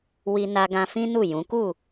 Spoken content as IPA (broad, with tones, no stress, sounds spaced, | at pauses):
w i˧ n a˧ ɡ ã˧ f ĩ˦ n u˦˨ j ũ˨˦ k u˦˨